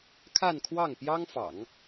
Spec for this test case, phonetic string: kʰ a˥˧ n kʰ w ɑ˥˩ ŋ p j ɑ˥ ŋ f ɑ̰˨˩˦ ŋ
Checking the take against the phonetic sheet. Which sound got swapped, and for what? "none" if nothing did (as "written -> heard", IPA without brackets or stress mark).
none